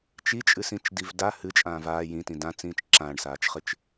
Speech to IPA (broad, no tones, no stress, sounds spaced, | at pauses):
t͡ʃ i t͡ʃʼ ɨ s ĩ t͡ʃ d i v d a h ɨ t͡ʃʼ ãː v aː j ĩ t ĩ d ã t͡s ĩː t͡ʃ ǁ ã ɳ s aː t͡ʃ χ ɨ t͡ʃ